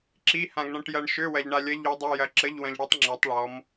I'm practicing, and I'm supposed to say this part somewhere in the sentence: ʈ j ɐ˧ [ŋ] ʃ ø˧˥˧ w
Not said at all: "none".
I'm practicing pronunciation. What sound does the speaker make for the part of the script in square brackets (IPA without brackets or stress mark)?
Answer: ɳ